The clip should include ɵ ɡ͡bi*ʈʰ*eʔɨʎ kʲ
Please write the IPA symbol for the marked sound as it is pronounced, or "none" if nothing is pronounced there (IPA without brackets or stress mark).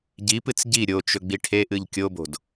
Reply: ʈʰ